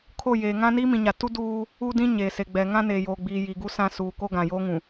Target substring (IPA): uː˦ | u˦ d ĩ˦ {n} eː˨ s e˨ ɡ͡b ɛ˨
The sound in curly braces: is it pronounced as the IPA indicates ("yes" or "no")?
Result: no